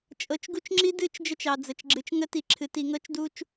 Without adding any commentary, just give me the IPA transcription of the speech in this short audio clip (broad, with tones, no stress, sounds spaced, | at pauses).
t͡ʃʼ ɤ˨ t͡ʃ ɡ u˦ t͡ʃ ŋ͡ǁ i˦ d ɨ˦˨ t͡ʃ d͡ʒ ə˦ t͡ʃ ɑ˨ d͡z ə˨ t͡ʃ ɡ͡ǁ ɨ˨ t͡ʃ ŋ ə˦ t i˨ ǁʰ ɨ˨ t i˨ ŋ ɤ˦ t͡ʃ d u˦ t͡ʃ